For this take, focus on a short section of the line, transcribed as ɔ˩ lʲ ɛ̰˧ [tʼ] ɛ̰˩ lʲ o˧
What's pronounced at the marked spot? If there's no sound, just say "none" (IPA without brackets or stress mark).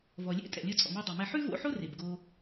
tʼ